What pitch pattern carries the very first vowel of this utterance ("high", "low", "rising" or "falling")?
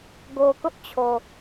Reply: low